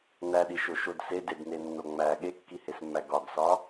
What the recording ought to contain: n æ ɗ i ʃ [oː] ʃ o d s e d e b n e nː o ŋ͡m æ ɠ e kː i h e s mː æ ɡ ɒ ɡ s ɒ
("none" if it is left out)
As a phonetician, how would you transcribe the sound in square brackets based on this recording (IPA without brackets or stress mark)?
o